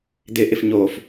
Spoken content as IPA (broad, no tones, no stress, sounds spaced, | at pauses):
d̪ ɪ ʔ ɪ f ɲ oː f